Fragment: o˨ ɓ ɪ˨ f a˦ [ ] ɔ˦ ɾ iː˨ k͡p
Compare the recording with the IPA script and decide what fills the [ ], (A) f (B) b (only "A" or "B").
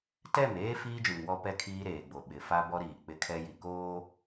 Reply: B